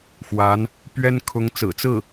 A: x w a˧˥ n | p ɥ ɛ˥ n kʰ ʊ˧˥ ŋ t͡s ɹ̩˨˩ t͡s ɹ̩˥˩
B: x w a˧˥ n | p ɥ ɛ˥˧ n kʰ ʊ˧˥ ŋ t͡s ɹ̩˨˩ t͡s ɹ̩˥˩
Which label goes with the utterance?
A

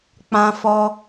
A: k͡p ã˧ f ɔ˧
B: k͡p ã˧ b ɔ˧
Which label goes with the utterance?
A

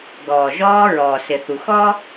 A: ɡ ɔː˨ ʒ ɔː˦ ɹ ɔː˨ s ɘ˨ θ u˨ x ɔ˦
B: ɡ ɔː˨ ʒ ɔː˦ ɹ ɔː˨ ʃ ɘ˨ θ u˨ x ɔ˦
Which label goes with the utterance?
A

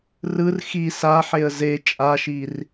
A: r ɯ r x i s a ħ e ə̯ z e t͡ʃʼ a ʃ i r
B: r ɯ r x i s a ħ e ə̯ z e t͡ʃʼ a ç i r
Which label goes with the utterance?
A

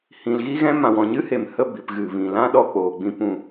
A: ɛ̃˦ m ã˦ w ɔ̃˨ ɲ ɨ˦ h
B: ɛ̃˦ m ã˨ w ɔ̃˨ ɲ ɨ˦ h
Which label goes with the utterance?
B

